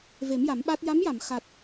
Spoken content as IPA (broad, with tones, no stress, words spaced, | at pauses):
ve˨˩˦mja˨˩˦mɓa˦˥t̚ ja˧˥mja˨˩˨m xa˨˩t̚